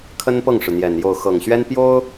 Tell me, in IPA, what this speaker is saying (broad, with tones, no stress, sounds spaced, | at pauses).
kʰ ə˥ n p ɤ˥˩ ŋ ʂ ɻ̩˩ n̪ j ɛ˨˩ n j o˥˩ ʊ̯ x ɤ˨˩ ŋ ɕ ɥ ɛ˥ n p j o˥ ʊ̯